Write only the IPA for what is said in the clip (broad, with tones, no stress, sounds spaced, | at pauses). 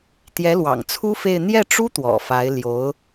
t̪ j ɛ˧˥ l w ɑ̰˨˩ ŋ t͡sʰ u˥ f e˥˧ ɪ̯ n̪ j ɛ˥˩ ʈ͡ʂ u˥ t̪ w ɔ̰˨˩ f a˧˥ ɪ̯ l j o˧˥ ʊ̯